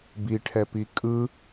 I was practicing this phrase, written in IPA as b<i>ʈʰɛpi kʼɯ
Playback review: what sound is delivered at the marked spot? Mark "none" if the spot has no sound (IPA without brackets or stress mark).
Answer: i